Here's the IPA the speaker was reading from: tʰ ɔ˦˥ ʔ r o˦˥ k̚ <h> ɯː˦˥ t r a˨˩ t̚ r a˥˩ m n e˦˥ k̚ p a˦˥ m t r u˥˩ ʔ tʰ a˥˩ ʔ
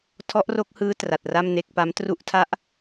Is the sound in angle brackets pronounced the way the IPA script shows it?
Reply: yes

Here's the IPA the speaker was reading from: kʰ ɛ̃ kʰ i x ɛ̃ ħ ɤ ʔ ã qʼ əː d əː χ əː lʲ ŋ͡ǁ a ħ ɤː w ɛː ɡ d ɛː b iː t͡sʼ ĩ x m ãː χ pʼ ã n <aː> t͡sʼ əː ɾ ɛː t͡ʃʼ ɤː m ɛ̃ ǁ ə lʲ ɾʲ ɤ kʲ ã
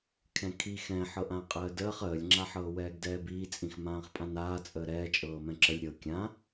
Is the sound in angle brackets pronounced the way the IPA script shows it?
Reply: yes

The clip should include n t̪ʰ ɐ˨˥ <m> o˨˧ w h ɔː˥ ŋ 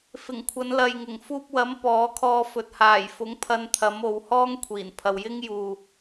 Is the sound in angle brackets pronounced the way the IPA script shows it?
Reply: yes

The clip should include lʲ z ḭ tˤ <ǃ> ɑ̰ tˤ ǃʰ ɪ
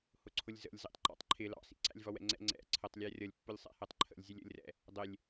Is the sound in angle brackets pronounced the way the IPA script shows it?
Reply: yes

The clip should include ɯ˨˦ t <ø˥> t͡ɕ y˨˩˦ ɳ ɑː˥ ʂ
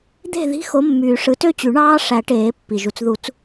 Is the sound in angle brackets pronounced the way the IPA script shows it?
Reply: yes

